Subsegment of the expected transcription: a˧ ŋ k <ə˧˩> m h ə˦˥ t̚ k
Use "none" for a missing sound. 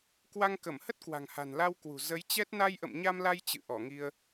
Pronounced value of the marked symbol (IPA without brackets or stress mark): ə˧˩